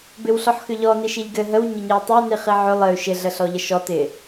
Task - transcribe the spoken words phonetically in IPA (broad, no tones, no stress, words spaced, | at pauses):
bɪwɬɔħxʏʎɔ niʃiʎɡɘ ɦəw ɲəɲiwtˤʏu̯ niχiʕʏ lˠɘy̯ ʃɪ ɮəɬɔʎəʃɔ tɪ